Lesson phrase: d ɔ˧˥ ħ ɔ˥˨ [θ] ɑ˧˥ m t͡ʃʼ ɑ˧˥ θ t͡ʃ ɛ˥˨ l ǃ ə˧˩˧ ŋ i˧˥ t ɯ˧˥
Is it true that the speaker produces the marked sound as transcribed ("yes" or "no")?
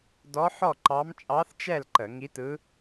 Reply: no